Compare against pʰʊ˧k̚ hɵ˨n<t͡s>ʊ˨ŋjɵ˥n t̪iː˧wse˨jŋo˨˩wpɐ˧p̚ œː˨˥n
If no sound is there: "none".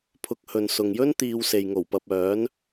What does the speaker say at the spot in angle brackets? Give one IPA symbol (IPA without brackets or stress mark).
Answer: s